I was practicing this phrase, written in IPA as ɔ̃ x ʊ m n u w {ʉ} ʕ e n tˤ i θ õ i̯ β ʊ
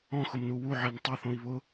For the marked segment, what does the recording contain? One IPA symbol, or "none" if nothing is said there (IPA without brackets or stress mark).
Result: u